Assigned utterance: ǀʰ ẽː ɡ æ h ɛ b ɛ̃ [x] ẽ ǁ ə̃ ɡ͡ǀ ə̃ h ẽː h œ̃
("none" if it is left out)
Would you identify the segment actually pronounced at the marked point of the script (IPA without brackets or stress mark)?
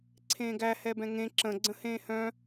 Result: ŋ